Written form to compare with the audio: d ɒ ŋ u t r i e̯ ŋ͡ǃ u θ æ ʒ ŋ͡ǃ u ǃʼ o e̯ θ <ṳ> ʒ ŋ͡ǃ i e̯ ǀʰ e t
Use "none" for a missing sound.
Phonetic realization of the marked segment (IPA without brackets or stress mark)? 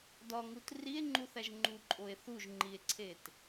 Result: u